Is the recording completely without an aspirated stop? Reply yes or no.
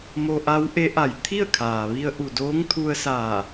no